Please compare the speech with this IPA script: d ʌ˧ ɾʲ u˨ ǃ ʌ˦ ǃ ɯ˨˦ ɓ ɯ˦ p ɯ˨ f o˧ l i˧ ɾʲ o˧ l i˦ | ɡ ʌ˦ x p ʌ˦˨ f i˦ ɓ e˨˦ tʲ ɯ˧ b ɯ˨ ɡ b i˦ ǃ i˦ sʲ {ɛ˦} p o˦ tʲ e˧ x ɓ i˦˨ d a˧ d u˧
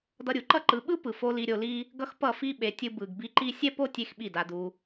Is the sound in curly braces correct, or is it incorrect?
correct